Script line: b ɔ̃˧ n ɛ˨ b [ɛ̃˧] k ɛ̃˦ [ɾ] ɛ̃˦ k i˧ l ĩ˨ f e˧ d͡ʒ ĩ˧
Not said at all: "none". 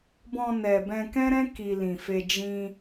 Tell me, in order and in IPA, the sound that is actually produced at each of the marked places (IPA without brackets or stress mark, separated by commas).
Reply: ɛ̃˧, ɾ